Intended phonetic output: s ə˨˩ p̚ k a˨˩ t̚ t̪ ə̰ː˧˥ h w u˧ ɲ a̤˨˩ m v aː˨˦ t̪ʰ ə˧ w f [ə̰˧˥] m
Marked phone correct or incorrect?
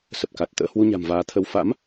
incorrect